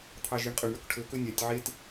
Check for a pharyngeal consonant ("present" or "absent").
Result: present